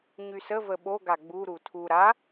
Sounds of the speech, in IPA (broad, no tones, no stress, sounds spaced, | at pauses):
ɲ y s ə v ə ɓ o ɡ a ɡ͡b u ɾ u tʰ u ɾ a